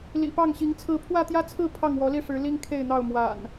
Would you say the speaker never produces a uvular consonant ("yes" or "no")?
yes